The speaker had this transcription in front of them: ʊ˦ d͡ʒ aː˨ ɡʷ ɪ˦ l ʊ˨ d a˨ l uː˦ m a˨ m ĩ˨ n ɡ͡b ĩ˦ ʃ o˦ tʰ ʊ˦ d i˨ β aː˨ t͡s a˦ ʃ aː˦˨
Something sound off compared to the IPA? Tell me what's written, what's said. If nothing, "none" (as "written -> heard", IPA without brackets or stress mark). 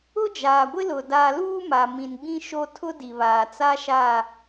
none